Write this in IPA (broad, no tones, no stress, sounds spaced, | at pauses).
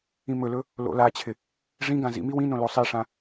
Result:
ĩ m ɵ l ɵ | l o̰ l a t͡ɕʰ ɪ | ʐ ĩ ɡ ã z ḭ m i w ĩ n õ l o sˤ i ʂ ã